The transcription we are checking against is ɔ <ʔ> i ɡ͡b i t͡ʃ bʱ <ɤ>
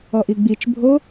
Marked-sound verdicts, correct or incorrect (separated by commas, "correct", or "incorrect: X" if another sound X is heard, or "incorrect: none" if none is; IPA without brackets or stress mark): correct, incorrect: o